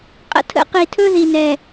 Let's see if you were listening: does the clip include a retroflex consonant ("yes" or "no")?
no